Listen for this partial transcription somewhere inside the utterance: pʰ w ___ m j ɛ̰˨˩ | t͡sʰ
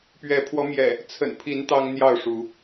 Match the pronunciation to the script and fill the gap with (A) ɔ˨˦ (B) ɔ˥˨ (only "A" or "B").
A